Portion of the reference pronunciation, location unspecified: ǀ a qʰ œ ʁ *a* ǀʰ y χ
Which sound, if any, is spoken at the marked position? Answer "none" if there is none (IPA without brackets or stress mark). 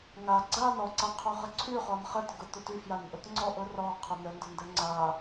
ə